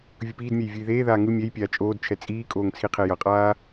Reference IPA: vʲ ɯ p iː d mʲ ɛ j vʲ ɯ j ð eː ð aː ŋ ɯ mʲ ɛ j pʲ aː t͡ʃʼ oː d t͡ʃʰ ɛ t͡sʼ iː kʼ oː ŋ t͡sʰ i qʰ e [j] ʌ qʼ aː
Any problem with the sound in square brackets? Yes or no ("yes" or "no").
no